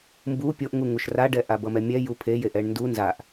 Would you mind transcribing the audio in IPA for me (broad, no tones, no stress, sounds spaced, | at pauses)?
m b u pʲ o ʔ ŋ u ŋ u ʃ r a ɖ ɛ ʔ a b ʌ m ɛ mʲ ɛ j u pʰ e j e ʔ ɛ ɳ n d u n z a ʔ